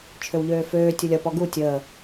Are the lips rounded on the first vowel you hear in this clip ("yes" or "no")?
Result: yes